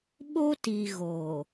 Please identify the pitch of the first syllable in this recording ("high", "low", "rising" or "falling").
high